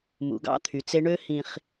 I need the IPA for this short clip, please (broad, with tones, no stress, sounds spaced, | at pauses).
m ṵ˨ ɡ ɑ̰˦ t̪ʰ y˨ t͡s e˦ ɳ ø˦ h ĩ˨ χ